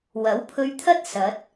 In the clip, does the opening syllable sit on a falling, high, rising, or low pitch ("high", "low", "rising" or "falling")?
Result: rising